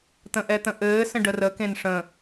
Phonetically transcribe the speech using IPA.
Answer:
t̪ə̃ʔɛt̪ə̃ʔɘː sə̃ɖərə kẽnʂə̃

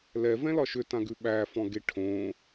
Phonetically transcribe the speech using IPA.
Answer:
lɛvɛ̃lɒ ʃʏtãɡʉ ɓæfɔ̃ɡe ʈʰõ

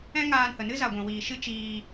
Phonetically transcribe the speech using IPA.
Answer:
ɛ̃˦ŋaː˧nhə˨nɨ˦ za˨ɡʷɛ̃˨ wiː˨ʃɨ˦ t͡ʃiː˧

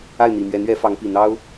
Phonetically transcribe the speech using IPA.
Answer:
a˥˩ɪ̯n̪i˨˩mɥɛ˧˥nɥɛ˧˥ fɑ˧˥ŋpi˨˩n̪ɑ˥ʊ̯

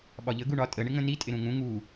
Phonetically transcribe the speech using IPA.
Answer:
ɓɒʎə ɡuɳɒ tʼə ɳɪŋə̃ni tʼɪɾũŋũ ŋu

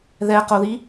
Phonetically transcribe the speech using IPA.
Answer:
ðɛqoði

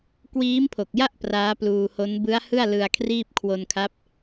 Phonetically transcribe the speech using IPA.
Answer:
kwiː˦˥mpʰo˨˩k̚ja˥˩ʔ praː˦˥pluː˧ho˦˥n bɯ˦˥a̯hɯ˥˩a̯ lɯ˧a̯kʰriː˥˩p̚ kʰwo˧nkʰa˦˥p̚

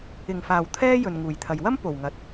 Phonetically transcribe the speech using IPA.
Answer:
ɪ˨˩ŋfaː˨˩w t̪ʰɛː˥ jɵ˨nŋuː˨˩jt̪ʰɐ˨j wɐ˥m po˨˩wŋɐ˨˥t̚

